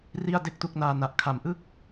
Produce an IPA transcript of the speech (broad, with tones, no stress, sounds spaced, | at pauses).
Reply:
r i˥˩ a̯ d e˦˥ k̚ t u˦˥ k̚ n aː˧ n a˨˩ ʔ kʰ a˨˩ m ʔ ɯ˥˩ k̚